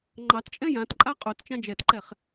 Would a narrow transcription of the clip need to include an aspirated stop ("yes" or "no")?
no